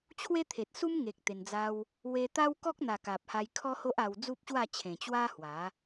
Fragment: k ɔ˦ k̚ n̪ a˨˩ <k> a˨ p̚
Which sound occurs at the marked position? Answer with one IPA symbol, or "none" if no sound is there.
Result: k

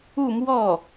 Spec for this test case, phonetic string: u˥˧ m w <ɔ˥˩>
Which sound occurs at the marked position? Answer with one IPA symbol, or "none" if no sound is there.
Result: ɔ˥˩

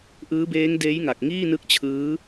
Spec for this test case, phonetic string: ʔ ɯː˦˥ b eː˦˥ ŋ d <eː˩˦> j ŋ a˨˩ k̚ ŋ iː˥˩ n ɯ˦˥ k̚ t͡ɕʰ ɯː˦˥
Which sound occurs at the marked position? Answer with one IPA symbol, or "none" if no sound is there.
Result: eː˦˥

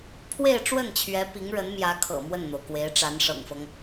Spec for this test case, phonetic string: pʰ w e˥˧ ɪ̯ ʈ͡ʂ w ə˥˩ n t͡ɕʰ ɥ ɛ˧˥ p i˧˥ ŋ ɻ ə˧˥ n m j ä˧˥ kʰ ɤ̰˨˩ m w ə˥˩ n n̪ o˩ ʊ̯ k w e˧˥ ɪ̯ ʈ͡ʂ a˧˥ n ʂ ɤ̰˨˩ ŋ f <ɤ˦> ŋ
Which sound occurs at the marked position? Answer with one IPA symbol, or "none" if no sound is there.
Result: ɤ˦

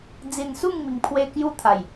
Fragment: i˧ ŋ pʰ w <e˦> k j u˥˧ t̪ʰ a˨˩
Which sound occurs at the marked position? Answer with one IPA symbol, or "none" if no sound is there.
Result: e˦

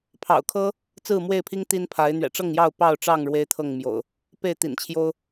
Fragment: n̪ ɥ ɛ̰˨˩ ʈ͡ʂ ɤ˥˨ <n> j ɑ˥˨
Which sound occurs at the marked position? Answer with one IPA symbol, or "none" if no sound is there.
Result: ŋ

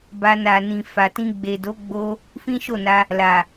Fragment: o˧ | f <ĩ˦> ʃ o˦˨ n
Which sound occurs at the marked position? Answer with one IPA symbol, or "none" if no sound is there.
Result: ĩ˦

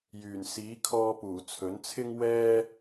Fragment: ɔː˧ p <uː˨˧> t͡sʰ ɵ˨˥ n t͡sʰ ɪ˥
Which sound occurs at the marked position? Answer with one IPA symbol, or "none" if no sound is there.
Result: uː˨˩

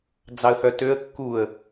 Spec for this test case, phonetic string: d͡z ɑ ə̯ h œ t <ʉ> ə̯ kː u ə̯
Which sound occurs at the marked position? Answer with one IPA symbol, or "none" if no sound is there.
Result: ø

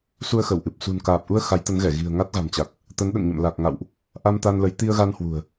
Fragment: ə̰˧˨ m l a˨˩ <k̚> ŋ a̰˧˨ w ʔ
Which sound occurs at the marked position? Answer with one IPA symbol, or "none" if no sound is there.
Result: k̚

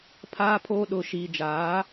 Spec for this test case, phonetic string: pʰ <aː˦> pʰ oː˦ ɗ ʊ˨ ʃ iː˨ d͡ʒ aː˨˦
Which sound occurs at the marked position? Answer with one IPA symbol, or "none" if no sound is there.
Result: aː˦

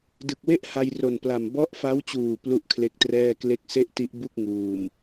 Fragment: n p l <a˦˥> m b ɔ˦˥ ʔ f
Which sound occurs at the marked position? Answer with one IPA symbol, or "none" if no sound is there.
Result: a˨˩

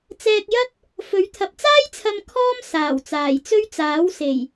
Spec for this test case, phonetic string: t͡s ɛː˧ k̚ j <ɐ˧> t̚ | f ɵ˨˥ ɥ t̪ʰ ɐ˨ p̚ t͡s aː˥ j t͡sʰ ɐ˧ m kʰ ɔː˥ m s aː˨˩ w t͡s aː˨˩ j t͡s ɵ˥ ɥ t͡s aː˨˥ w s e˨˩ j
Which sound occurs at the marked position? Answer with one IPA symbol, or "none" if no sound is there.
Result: ɐ˥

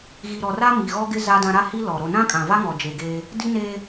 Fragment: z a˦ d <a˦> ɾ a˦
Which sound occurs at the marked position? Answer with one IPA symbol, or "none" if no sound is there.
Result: ã˦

